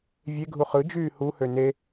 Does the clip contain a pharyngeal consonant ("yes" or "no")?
no